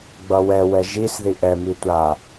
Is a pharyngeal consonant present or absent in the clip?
absent